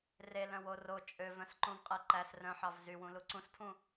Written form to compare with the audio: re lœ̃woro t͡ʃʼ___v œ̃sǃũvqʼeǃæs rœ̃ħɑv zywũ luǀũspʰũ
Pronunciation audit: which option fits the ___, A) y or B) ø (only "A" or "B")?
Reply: B